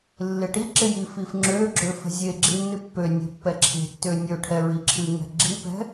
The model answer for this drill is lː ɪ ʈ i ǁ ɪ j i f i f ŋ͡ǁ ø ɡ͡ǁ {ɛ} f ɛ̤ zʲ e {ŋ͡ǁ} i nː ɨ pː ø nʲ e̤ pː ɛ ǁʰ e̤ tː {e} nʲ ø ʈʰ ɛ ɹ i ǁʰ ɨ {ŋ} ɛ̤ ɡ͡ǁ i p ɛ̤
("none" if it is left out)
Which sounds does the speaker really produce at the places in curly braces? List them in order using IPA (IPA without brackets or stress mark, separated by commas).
ø, ɡ͡ǁ, ø, ŋ